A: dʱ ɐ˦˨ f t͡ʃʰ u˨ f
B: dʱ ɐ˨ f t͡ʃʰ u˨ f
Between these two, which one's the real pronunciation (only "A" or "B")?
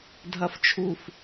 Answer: B